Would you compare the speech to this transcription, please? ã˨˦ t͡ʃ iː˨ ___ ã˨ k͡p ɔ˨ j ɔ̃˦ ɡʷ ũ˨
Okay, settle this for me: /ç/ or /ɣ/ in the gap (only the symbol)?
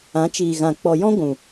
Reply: ɣ